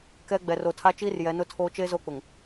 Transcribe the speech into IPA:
k ɛ˦ ɡ͡b ɛ˨ r o˨ tʰ a˦ t͡ʃ iː˦ r j ɛ˨˦ n ʊ˦ tʰ oː˦ t͡ʃ e˦ z o˦˨ k͡p ʊ˨ ŋ

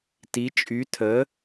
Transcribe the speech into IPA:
t i t͡ʃʼ y tʰ ə

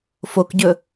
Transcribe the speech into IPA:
f o k ɟ ɵ

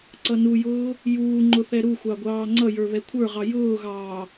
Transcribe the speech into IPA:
ǀ ʌ n u j ʊː | j uː ŋ͡ǃ ʊ θ ɛ ɾ u xʷ ɑ ɡʷ ɑː ŋ͡ǀ ʌ j ə˞ β ɛ kʷʰ ə˞ ʁ ɑ j ʊː ɣ ɑː

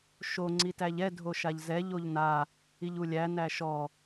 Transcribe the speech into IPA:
ʃ o ŋ͡ǀ i t æ ʎ ɛ dʱ o ʃ a ʎ z ɛ ʎ o ʎ n a | i ʎ u lʲ æ n æ ʃ ɔ

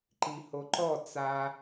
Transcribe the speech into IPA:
ǃ i h o ǃ ɔ t͡s a

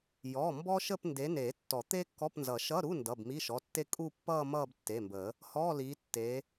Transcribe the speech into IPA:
j ɔ˩˧˩ m b ɔ˥ ʃ ə˥˧ p n d e˨˦ n e˨˩˦ tː ɔ˨˩˦ t̪ e˥ kː ɔ˧˥˧ p n z ʌ˨˩˦ ʃ ʌ˧˥˧ ɾ u˧˥˧ n d ʌ˩˧˩ b m i˧˥˧ ʃ ɔ˩˧˩ tː e˥ kʼ u˥˧ pː ʌː˥˧ m ʌː˥˧ b tː e˩˧˩ m b ə˨˩˦ | h ɔː˧˥˧ l iː˨˦ tː e˨˦

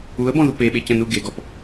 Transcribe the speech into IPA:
u ə̯ b ɔ̃ ð u p e ɓ e c ə̃ n u ɡ e ɡ ɔ p

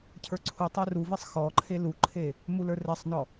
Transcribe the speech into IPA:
cʰ ə˞ ǀʰ u tˤ ə˞ r u v e sˤ x ɔ ǃʰ e l u ǃʰ e | m u l ə˞ r ɛ sˤ n ɔ

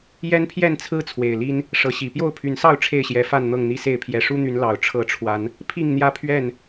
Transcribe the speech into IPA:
j ɛ˦ n pʰ j ɛ˥˨ n t͡sʰ ɹ̩˦ t͡sʰ w e˨˩ ɪ̯ l i˦ n | ʂ ɤ˨˦ ɕ i˨˩ p j o˥˨ ʊ̯ pʰ y˨˦ n s ɑ˥˨ ʊ̯ ʈ͡ʂʰ e˥˨ ɪ̯ ɕ j ɛ˨˦ f a˥˨ n n̪ ɤ˥˨ ŋ n̪ i˦ s e˥˨ ɪ̯ pʰ j ɛ˨˩ ʂ u˦ n̪ y˨˦ n l ɑ˨˩ ʊ̯ ʈ͡ʂʰ ɤ˨˦ ʈ͡ʂʰ w a˨˦ n | pʰ i˥˨ ŋ n̪ j ä˥˨ pʰ ɥ ɛ˥˨ n

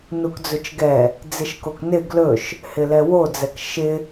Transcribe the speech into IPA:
n u k d͡z ɵ t͡ʃ ɡ ɛ | d͡z ɪ ʃ k o k n ɪ ɡ l ɵ ʃ | h ɪ l ɛ w o d͡z ɛ k ʃ ɪ

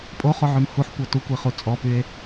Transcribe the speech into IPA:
pʼ o χ o ʕ y m h u ħ kʷ ɤ t u kʷ i χ u t͡sʼ ɔ p y e̯

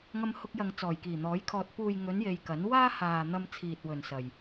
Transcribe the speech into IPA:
ŋ ɐ˧ m h ʊ˧ k̚ j ɐ˨ ŋ t͡s ɔː˨˩ j k iː˨˩ n̪ ɔː˨˥ j kʰ ɔː˧ t̚ p uː˨ j ŋ ɵ˨˧ n j e˧ j k ɐ˨˥ n w aː˥ h aː˨ n̪ ɐ˧ m t͡sʰ iː˨ t̚ w ɵ˨ n s ɐ˨ j

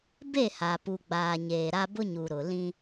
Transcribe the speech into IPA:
b e˦˨ h a˨ p u˨ ɡ͡b aː˨ ɲ eː˨ ɾ a˦ b ʊ˦ ɲ u˨ ɾ ʊ˨ l ĩ˦

